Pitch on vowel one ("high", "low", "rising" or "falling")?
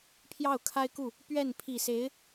falling